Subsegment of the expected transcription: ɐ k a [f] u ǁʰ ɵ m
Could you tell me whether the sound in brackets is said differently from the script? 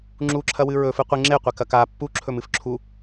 yes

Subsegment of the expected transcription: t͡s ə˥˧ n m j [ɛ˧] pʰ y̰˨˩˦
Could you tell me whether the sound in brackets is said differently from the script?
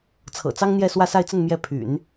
yes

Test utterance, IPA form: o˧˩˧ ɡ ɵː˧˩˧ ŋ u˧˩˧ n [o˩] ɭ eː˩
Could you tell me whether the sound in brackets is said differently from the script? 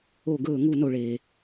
no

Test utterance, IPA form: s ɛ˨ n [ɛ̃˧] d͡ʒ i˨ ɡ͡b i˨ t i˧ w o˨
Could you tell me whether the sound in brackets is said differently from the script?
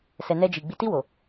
yes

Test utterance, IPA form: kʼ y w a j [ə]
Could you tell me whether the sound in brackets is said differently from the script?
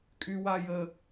no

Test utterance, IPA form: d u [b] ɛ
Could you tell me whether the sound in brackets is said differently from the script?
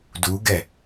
yes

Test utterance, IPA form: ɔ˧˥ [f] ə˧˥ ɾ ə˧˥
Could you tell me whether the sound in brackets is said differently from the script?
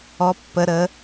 yes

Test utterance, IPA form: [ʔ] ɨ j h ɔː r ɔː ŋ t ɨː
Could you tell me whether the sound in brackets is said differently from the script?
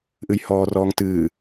no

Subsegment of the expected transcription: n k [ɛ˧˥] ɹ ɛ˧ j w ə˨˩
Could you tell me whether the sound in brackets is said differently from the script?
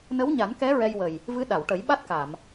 no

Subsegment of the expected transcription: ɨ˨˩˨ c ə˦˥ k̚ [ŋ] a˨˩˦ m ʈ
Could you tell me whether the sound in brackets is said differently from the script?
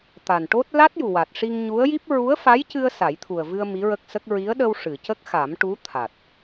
yes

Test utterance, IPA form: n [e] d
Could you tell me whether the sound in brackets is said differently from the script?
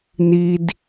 yes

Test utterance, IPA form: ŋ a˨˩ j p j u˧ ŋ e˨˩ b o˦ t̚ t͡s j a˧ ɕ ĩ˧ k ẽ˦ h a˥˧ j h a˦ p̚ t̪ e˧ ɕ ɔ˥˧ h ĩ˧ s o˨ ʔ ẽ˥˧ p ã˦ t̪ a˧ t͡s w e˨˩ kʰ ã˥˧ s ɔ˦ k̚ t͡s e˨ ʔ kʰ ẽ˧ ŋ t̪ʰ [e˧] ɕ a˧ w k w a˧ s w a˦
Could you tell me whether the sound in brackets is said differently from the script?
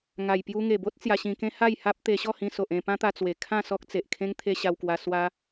no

